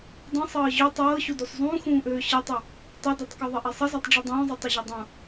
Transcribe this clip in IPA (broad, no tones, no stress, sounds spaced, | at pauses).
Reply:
dˤ ĩ sˤ ɤː ʑ ø tˤ ɤː ɕ u d u sˤ zˤ ũː x ũː ʔ øː ɕ ɘ tˤ ɘ | tˤ ɘ d ɛ tˤ k o ðˤ ɘ ʔ e sˤ ə z ɛ tˤ ɖ͡ʐ i dˤ ũː zˤ ɯ tˤ ə ʑ o dˤ ũ